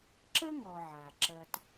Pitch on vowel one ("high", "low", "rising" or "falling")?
high